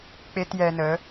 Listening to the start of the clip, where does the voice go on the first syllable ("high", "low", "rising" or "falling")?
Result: high